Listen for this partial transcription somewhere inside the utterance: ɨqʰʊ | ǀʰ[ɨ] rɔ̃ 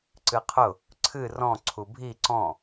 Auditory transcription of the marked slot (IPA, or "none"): ɨ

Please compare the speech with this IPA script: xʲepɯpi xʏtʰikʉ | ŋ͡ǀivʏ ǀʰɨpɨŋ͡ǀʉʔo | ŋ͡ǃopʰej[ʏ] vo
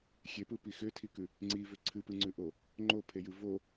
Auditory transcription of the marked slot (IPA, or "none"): ɨ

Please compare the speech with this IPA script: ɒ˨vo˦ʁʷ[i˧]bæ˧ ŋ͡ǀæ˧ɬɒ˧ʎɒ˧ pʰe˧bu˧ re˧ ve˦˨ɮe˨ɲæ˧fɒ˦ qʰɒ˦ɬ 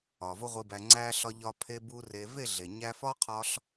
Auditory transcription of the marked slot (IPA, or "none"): i˧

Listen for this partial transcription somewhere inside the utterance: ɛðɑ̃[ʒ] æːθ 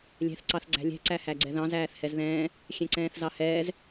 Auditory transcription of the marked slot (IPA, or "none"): z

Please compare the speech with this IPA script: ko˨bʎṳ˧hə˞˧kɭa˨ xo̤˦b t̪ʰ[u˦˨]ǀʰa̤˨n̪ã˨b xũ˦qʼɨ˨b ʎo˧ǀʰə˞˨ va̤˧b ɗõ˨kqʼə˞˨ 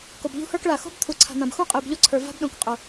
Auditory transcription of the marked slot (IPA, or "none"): u˨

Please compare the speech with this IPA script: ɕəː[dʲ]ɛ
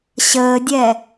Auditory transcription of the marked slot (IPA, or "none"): dʲ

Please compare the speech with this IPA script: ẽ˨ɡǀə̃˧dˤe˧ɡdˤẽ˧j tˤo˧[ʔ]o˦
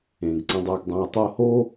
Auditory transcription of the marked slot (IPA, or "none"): h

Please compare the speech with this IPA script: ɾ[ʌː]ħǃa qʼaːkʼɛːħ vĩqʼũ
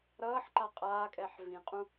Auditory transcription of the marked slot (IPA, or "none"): ʌː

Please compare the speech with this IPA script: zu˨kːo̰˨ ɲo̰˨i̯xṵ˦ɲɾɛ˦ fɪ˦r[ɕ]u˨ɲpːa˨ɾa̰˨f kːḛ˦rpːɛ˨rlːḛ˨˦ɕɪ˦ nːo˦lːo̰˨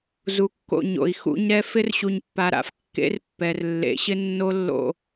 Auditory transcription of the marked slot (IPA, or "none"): ɕ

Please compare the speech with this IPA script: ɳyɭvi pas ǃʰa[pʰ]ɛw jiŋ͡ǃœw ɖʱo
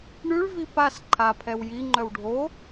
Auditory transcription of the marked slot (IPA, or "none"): pʰ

